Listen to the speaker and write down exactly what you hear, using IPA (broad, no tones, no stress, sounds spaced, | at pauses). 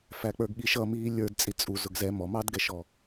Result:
f æ k͡p ə˞ ɡ ɠ i ʃ ʌ m iː lʲ ə˞ d t͡sʼ i t͡sʼ u z ʊ ɡ z ɛ m ɔ m ɑ d ɡ ɛ ʃ ɔ